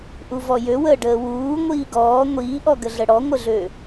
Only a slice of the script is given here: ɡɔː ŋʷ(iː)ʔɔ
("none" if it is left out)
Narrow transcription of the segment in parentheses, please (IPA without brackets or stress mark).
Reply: iː